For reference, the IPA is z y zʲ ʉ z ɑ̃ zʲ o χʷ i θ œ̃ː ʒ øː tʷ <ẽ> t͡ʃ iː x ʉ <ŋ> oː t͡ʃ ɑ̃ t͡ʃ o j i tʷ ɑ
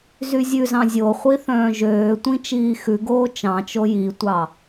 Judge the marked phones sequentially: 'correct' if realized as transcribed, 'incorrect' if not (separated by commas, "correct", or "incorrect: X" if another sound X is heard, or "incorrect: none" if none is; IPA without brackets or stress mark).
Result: incorrect: ĩ, incorrect: ɡ